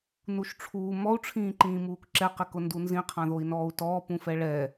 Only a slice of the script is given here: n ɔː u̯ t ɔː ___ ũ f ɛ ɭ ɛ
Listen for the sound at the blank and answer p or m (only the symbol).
p